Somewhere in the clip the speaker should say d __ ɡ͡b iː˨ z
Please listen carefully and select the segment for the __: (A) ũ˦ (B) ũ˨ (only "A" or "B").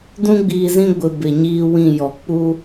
A